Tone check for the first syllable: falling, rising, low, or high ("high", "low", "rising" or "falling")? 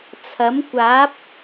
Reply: rising